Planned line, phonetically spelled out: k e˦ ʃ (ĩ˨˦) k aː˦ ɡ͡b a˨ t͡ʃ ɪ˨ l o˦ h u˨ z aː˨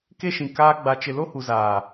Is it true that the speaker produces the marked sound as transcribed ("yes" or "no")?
no